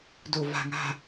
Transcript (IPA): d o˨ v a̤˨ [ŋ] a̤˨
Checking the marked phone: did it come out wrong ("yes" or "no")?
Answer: no